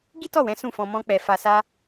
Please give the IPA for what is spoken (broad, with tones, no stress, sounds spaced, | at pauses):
ɡ i˦ t ɔ˦˨ w ɛ̃˨˦ s ũ˦˨ f ɔ̃˧ m ɔ̃˦ k͡p ɛ˧ f a˧ s a˦